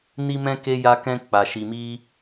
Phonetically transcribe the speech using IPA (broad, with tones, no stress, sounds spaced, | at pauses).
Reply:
n i˦ m ɛ̃˦ k e˧ j a˧ k ɛ̃˧ k͡p a˨ ʃ i˨ m i˧